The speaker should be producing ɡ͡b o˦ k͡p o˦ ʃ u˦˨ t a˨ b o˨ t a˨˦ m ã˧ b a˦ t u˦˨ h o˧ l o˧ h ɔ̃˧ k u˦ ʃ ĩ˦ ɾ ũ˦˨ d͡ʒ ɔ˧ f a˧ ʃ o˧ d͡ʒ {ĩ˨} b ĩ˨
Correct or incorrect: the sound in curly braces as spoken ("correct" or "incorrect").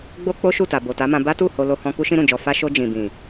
correct